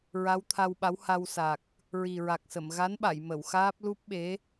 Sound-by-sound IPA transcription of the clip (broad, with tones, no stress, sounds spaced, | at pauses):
ɹ a˧˥ w t̪ʰ a˧ w ɓ a˧˥ w h a˧ w s a˨˩ k̚ | ɹ i˨˩ ɹ a˨˩ k̚ s ə˨˩˨ m ɣ a˧˥ n ɓ a˨˩˨ j m ə˨˩˨ w x aː˦˥ p̚ l u˦˥ p̚ ɓ e˧˥